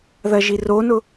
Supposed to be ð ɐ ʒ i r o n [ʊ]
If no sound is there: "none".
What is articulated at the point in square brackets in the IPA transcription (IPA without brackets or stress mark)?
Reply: ʊ